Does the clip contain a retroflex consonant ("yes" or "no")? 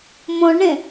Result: yes